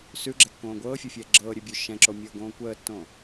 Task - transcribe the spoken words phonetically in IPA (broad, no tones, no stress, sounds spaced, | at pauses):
s ʉ ɡ͡ǁ ɛ kː õː ɡʷ ɤː fʲ o fʲ ɛː ɡ͡ǁ ɤː ɾʲ ʉ bʲ ʉ ʃ ɛ̃ ǁ o mʲ ɤː ɡ õː kʷ əː tː õ